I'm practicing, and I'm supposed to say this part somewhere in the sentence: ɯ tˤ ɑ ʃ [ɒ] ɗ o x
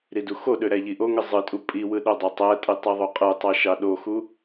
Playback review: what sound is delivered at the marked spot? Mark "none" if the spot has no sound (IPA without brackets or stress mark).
ɑ